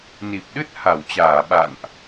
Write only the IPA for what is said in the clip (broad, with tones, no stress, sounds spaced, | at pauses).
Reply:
n i˨˩ p̚ ɗ ɨ˦˥ t̚ h a˧˩ w t͡ɕ aː˧˩ ɓ a̰˧˨ n ʔ